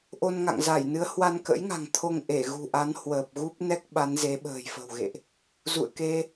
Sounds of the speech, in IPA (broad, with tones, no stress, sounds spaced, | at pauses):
ʔ o˧ n ŋ a̰˧˨ ŋ z a˧˩ j n ɨ˨˦ ə̯ h w a˧ n k ə̰˧˥ j ŋ a̤˨˩ ŋ t̪ʰ o˧ ŋ ʔ e˧˩ ɣ ṳ˨˩ ʔ a˨˦ n h w əː˨˩ p̚ ɣ u˦˥ p̚ n ɛ˦˥ k̚ ɓ a˨˦ n z e˨˦ ɓ ə̤ː˨˩ j f ə̤˨˩ w ɣ ḛ˧˨ ʔ | z ṵ˧˨ ə̯ k e˧